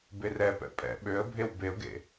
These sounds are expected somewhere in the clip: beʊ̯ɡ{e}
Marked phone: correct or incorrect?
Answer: incorrect